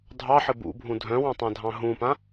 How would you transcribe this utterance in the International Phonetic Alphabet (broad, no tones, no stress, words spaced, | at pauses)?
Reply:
dʱɑħɘ bṵbʱũ dʱœ̃wɑ̃tˤãdʱɑ̃ ɦũpã